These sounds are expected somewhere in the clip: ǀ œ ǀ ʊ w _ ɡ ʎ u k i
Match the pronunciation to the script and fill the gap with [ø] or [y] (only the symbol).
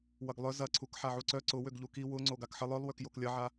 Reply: ø